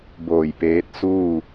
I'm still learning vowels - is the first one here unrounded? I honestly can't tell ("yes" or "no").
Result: no